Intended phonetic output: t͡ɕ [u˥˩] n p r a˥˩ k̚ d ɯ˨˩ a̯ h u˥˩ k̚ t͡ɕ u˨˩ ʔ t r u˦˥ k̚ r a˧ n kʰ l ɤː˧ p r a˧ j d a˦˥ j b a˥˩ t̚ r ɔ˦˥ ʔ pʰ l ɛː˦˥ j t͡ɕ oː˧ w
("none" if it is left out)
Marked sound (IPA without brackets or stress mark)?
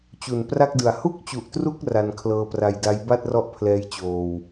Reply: u˨˩